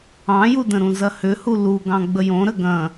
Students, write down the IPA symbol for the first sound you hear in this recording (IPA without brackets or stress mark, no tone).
ɑ̃